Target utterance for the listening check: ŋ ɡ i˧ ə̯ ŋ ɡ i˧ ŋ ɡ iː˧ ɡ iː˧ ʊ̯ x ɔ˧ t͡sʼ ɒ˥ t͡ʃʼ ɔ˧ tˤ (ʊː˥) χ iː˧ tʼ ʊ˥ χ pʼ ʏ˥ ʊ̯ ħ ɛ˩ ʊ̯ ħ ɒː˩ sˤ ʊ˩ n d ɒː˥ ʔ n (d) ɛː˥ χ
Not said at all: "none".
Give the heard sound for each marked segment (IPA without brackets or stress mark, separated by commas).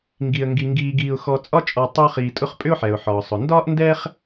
ʊː˥, d